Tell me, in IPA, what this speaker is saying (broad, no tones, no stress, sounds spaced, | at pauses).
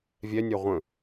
vʲ ɛ nʲ ɜ ʁʷ ə̃